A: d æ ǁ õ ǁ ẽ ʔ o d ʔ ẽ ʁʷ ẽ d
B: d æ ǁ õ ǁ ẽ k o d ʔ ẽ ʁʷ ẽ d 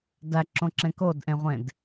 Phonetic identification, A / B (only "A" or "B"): B